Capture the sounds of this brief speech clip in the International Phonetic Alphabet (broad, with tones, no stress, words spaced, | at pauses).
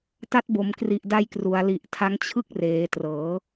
ta˦˥t̚bo˩˦mkri˨˩ʔda˧j kru˩˦a̯li˨˩ʔtʰa˦˥ŋ t͡ɕʰɯ˥˩k̚reː˩˦trɤː˩˦